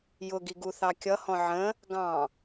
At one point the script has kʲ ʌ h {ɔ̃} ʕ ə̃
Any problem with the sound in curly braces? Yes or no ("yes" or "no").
no